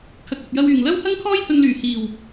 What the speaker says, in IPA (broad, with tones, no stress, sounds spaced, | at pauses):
kʰ ɐ˨ k̚ ɐ˨ p̚ j ɐ˧ w yː˨˩ ŋ l ɐ˥ w h ɐ˥ ŋ kʰ ɔː˥ j h ɵ˧ n l yː˨˩ h iː˨˩ w